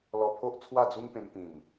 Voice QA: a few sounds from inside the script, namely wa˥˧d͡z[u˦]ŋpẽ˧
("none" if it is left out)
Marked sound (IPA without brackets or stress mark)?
u˦